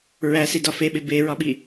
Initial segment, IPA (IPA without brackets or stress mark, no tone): ɹ